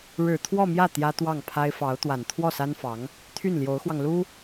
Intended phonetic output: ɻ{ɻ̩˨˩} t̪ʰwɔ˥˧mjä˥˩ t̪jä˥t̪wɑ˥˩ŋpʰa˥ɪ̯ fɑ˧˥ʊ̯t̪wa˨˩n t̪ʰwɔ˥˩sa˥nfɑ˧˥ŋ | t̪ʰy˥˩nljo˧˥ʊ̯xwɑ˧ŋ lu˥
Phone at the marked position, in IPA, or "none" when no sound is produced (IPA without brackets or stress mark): ɻ̩˨˩